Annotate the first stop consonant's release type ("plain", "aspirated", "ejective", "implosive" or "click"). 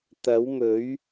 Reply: plain